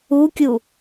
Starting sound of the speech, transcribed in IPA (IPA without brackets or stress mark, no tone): u